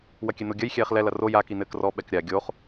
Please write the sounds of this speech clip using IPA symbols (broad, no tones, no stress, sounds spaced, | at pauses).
w ɐ kʲ ɛ n o ɡʲ ɐ j xʲ ɛː χ l ɛ l ɐ r o j a k i n ɘː k r ɔ ɓ ɛ k ɾʲ a ɡʲ o χ